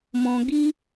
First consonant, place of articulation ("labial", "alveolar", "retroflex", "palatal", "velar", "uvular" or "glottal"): labial